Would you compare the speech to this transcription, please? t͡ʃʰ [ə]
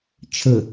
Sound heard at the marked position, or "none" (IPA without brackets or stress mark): ə